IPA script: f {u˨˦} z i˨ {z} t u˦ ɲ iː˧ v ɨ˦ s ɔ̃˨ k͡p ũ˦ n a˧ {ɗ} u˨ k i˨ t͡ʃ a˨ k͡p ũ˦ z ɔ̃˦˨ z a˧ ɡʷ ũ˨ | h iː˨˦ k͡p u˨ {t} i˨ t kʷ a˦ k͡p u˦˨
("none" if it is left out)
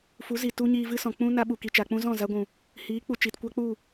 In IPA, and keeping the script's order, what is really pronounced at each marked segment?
u˨˦, none, ɓ, t͡ʃ

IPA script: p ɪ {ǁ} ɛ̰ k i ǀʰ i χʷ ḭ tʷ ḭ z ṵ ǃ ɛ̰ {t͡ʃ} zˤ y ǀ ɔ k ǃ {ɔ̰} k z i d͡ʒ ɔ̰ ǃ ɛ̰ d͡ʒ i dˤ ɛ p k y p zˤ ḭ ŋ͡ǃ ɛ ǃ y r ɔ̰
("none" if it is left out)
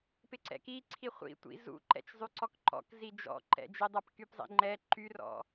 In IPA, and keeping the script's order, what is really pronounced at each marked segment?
ǀ, t͡ʃ, ɔ̰

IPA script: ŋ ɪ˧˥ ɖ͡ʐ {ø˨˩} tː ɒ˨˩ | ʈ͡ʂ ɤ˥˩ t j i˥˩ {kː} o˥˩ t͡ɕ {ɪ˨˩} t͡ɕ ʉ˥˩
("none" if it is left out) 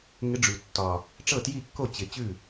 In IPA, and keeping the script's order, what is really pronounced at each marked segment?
ʉ˨˩, kː, ɪ˨˩

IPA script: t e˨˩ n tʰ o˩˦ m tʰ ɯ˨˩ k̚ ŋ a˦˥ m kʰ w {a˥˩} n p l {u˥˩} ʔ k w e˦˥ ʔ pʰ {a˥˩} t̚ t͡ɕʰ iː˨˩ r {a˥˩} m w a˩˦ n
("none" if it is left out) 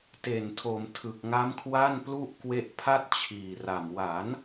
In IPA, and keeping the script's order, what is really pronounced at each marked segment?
a˥˩, u˥˩, a˥˩, a˨˩

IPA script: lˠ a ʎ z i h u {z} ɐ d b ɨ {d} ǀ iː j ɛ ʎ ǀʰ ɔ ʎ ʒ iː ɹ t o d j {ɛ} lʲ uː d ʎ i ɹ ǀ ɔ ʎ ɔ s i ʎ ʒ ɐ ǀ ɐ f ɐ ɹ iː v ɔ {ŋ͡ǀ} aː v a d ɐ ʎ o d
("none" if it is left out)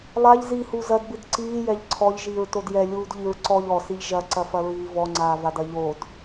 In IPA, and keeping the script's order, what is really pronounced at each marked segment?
z, d, ɛ, ŋ͡ǀ

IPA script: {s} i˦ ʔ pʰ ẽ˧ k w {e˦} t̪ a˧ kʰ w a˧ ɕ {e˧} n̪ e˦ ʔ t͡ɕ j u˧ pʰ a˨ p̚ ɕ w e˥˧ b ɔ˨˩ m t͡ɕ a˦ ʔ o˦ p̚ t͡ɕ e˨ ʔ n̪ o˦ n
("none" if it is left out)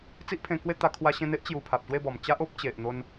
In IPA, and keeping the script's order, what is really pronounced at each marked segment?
t͡s, e˥˧, ẽ˧

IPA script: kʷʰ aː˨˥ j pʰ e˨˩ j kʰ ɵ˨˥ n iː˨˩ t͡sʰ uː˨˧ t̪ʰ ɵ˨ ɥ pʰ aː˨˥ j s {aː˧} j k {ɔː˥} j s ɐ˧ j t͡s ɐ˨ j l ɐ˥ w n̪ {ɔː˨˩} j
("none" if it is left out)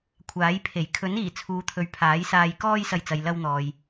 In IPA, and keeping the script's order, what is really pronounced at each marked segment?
aː˧, ɔː˥, ɔː˨

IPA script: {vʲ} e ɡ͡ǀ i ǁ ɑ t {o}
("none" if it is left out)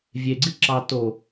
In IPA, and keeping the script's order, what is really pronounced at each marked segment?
vʲ, o

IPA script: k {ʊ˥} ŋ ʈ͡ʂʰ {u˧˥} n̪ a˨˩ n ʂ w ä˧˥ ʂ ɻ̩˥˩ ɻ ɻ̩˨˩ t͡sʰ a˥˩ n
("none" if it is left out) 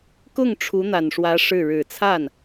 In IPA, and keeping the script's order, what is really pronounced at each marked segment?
ʊ˥˩, u˧˥

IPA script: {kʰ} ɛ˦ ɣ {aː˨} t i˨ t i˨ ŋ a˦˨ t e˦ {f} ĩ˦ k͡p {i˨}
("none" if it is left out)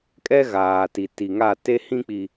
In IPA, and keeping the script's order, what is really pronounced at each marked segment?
kʼ, aː˨, h, i˨

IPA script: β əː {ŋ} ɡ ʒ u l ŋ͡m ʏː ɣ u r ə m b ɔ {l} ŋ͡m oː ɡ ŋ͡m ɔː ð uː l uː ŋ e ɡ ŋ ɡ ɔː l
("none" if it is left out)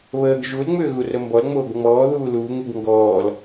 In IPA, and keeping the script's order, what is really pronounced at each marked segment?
none, l

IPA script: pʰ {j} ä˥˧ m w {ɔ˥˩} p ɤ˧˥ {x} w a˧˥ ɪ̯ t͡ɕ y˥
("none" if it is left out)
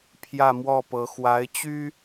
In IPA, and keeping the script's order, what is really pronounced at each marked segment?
j, ɔ˥˩, x

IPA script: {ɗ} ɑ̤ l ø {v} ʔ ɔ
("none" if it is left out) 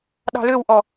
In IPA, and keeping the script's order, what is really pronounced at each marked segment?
ɗ, w

